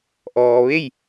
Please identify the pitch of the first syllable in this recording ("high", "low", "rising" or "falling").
low